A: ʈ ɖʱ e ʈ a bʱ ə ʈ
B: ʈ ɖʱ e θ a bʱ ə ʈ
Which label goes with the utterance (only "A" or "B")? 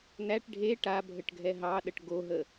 A